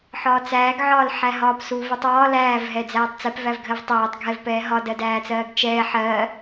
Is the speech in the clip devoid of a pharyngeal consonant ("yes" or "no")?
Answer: no